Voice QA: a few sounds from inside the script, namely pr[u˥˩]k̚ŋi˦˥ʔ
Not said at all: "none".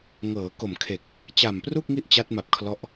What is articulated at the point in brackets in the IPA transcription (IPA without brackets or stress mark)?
u˥˩